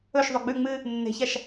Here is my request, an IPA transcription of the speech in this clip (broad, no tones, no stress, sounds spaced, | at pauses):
ɵ ʃ ðˤ o ɡ͡b ʉ ŋ͡m ɨ | nː e̤ ç a ʃ